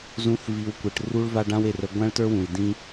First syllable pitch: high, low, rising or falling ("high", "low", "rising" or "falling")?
rising